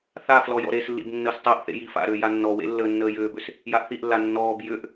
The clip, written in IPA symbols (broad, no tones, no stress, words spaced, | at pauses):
θa flɔjɔ̰ɾeslːḭb nːəːstˤəːʔθḛ jifa̰ɾʏː janːɔwḛ lːəːnːəːjʏːbʏs | jaʔθiʔlːa nːɔːb jʏʔ